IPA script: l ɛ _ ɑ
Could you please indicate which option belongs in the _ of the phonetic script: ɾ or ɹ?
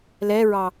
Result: ɹ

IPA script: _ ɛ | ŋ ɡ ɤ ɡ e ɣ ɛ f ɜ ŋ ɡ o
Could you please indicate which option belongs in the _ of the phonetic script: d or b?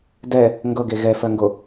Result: d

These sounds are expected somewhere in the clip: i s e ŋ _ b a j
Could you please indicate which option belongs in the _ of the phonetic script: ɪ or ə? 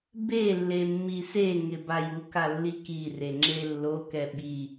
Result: ɪ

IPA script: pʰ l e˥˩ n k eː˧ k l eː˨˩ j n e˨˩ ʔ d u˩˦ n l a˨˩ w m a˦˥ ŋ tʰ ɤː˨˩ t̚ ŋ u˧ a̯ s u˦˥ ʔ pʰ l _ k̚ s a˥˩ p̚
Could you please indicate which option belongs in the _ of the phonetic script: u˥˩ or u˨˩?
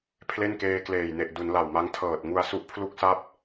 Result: u˥˩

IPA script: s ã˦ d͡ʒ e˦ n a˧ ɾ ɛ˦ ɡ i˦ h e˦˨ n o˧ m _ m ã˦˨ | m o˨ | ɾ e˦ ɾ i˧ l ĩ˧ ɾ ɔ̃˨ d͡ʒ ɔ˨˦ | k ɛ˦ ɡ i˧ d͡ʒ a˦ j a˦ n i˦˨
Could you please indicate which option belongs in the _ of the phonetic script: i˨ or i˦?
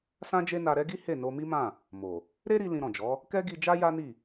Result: i˦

